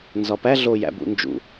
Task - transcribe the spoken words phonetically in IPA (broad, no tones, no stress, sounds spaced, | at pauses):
n z ɒ p æ ɮ o j æ̰ b ṵ n d͡ʒ ṵ